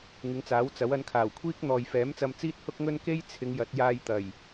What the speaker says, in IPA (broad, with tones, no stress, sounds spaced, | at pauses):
ŋ ɪ˨˧ ŋ t͡s aː˨˥ w t͡s ɐ˨˥ w ɐ˨˧ n kʰ aː˨˩ w kʷʰ iː˥ k̚ n̪ ɔː˨ j f ɛː˨˥ m t͡s ɐ˧ m t͡s iː˥ t̚ h ʊ˥ k̚ ŋ ɵ˥ n k e˥ j t͡sʰ ɪ˨˧ ŋ j ɐ˨˥ t̚ j aː˧ j t̪ ɐ˨˩ j